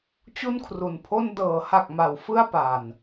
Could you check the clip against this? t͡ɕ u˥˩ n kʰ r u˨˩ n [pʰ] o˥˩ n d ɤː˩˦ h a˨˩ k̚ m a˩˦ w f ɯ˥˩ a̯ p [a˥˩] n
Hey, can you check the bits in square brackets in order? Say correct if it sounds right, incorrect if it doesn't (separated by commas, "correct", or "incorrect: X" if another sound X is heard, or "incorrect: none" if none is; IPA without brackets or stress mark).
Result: correct, incorrect: a˨˩